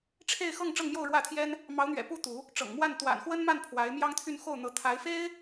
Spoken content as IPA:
ʈ͡ʂʰ e˥˧ ɪ̯ x ɤ˥˧ ŋ ʈ͡ʂ ɤ˥˧ ŋ m j o˥˧ ʊ̯ ɻ w ä˥˩ t̪ʰ j ɛ˥ n | m ɑ˧˥ ʊ̯ n̪ ɥ ɛ̰˨˩ p u˥ t̪ u˧˥ | ʈ͡ʂ ɤ̰˨˩ ŋ m w a˥˩ n t̪ w a̰˨˩ n x w ə˥ n m a˥˩ n pʰ w a˧˥ ɪ̯ m j ɑ˥ ŋ t̪ʰ y˥˧ n x o˥˩ ʊ̯ n̪ ɤ˧˥ t̪ʰ a˧˥ ɪ̯ f e˥ ɪ̯

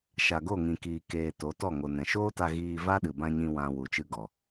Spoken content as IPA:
ʃ a˨ ɡ o˦˨ ŋ ĩ˨ k iː˨ k eː˨ t o˨˦ t ɔ˦˨ ŋ o˨ n ɛ̃˨ ʃ oː˦ t a˧ ɣ iː˧ v a˦ ɗ ɨ˨ b ã˧ ɲ ĩ˧ w ã˨ w u˨ t͡ʃ ɨ˧ ɡ ɔ˨

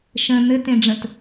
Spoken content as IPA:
ʃ ə̃ n̪ ɘ t ẽ ɖ͡ʐ ə̃ t

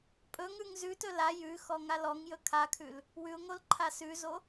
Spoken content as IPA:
pʼ ɵ ŋ ʉ ŋ z ʉ t ɵ l a j ʉ x ɔ ŋ a l ɔ ŋ j ɵ kʰ a kʰ ʉ l | w ʉ ʊ̯ ŋ o l ǃʰ a s ʉ z o

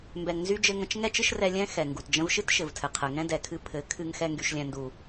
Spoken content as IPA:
m b ɛ˨ ŋ n z y˧ d͡ʒ ɘ˧ ŋ ə̃˧ t͡ʃ ŋ ɛ˦ t͡ʃ ɨ˦ ʃ r ɛ˧ lʲ ɛ̃˦ x ɛ˨ ŋ ɡ u˨ t d͡ʒ ə̃˦ v ʃ ɨ˦ t ʃ ɘ˨ v tʰ ɘ˨ qʰ ɘ˨ ŋ ɛ̃˧ d ɛ˨ kʰ ɨ˧ pʰ ɘ˨˦ kʰ ɨ˧ ŋ x ɛ˧ ŋ ɡ y˨ ʃ lʲ ɛ̃˨ n d u˨

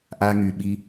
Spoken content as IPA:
ʔ a˧ ŋ y˨ ɓ i˧

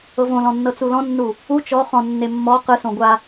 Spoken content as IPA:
ɤ v õ l ɔ̃ nː ɤ t͡s u l ɔ̃ nː u | u t͡ʃ ɔ χ ɔ̃ nː e mː ɔ q ɯ s õ ɡʷ a

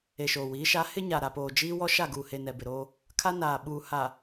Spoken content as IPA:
e˨ ʃ oː˨ w iː˨˦ ʃ a˨˦ h ɪ˦ ɲ a˨ ɾ a˨ p oː˨ d͡ʒ iː˦ w ɔ˦ ʃ a˦˨ ɡ uː˨ h e˨ n ɛ˨ b ɪ˨ ɾ oː˦ | kʰ a˦ n aː˨ ɓ uː˨ h a˨

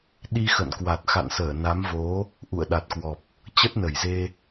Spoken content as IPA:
ɗ i˧ x ə̰˧˨ n k w a˨˩ t̚ x a̰˧˨ n s əː˧˩ n a˨˦ m v o˨˦ | ʔ ṵ˧˨ ə̯ ɗ a˨˩ t̚ k w ɔ˨˩ p̚ | t͡ɕ ə˦˥ t̚ n ə˧˩ j z e˧

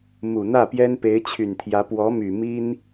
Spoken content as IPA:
m u˨˩ n̪ ä˥˩ p j ɛ˥ n p e˧˥ ɪ̯ t͡ɕʰ y˨˩ n t̪ʰ j ä˧˥ p w ɔ˧˥ m y˨˩ m i˥ n

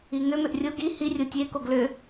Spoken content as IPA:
i ŋ ʏ m ʏ ʔ rʲ o ɡ i h i rʲ o tʲ e k o ɡ l ʏ

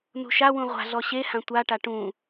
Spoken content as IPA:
n ṳ ʃ a w ũ ʁʷ a̤ ɮ ɔ ɕ e h ã tʷ a ʈ a ʈ ũ

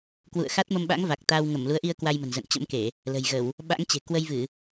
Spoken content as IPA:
k w ṵ˧˨ ə̯ x a˦˥ t̚ m ə˧ m ɓ a̰˧˥ ŋ v a˨˩ k̚ t̪ a˧ w ŋ ə˧˩ m l u˨˦ ə̯ ʔ i˧ ə̯ k w a˧ j m ə̤˨˩ n z ə̰˧˨ n t͡ɕ ə̰˧˥ m k e˧˩˨ | l ə̤˨˩ j ɣ ə˧˩˨ w | ɓ a̰˧˥ ŋ t͡ɕ e̤˨˩ k w ə˧ j v ɨ˧˩˨

